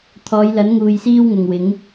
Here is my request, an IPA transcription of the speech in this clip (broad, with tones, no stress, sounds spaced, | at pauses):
t̪ʰ ɔː˨˧ j l ɐ˨˥ n ŋ uː˨ j s iː˥ w ŋ ʊ˨ ŋ w ɪ˨˥ ŋ